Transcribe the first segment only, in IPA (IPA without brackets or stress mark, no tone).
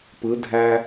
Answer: p